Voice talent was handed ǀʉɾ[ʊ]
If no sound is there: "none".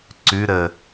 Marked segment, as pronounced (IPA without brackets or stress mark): ə